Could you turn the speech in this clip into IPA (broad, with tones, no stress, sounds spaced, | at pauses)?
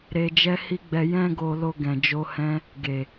ɾ e˧ d͡ʒ ɛ˦ h i˦ ɡ͡b ɛ˧ j ɛ̃˦ ɡ o˧ l o˧ ɡ ɛ̃˨ d͡ʒ o˧ h ɛ̃˧ | ɡ e˨